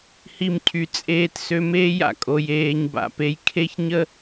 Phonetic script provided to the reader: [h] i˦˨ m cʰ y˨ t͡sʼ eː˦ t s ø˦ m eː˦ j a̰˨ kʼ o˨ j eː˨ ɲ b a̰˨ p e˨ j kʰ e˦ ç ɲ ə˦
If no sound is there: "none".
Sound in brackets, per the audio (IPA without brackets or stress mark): h